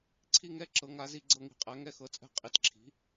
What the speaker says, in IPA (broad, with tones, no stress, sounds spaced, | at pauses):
ǀʰ i˦˨ ŋ ɛ˦˨ ǁ ɤ˩˥ ŋ a˩˥ z i˦˨ ɡ͡ǀ ɤ˦˨ ŋ i̤˩˥ qʼ æ˩˥ ŋ ɛ˦˨ x ɤ˩˥ t͡sʼ ɛ̤˦˨ qʼ i˩˥ t ǁʰ i̤˩˥